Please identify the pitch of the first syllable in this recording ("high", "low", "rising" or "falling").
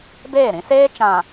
falling